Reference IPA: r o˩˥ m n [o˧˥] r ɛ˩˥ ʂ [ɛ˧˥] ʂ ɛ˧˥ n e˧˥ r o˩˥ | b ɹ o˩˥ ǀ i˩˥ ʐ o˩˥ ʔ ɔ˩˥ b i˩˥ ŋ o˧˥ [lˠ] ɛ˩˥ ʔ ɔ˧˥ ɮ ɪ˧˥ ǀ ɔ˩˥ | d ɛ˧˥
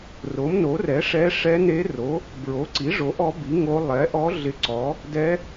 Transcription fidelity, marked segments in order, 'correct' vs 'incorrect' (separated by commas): incorrect, correct, correct